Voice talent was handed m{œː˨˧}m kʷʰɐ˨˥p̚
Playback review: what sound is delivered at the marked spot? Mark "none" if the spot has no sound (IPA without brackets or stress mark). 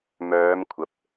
œː˨˧